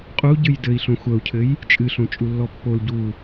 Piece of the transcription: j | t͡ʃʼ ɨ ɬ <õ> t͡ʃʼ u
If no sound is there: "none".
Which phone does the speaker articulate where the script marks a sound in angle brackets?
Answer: õ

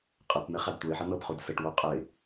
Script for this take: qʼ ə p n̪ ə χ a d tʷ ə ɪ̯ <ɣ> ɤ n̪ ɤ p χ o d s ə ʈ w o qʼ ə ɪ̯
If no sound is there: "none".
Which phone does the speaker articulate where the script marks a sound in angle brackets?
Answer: ħ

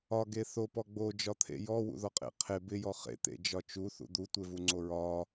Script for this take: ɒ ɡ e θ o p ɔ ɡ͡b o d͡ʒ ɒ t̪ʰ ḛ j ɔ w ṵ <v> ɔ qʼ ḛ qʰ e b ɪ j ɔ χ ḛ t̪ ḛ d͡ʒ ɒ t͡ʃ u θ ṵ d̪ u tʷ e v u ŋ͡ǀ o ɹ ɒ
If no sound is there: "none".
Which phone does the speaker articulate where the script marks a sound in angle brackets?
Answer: ð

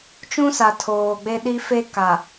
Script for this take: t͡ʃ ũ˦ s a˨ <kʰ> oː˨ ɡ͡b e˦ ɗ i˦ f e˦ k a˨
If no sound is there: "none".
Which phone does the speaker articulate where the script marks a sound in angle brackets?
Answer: tʰ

